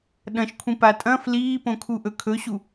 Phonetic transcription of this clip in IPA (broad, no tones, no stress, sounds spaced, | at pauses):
ɗ ɐ̃ ʃ kʷʰ ĩ p a tʼ ɐ̃ f l iː p õ kʰ u ʔ ɵ kʰ ɵ ɕ u